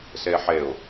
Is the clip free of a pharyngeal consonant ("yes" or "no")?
no